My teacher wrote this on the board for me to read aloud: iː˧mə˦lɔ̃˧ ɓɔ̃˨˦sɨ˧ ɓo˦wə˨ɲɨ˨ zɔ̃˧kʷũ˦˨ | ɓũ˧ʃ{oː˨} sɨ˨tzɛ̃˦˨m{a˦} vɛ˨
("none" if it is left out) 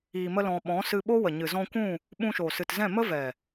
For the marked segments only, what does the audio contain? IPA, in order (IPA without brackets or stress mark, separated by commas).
o˨, ə˦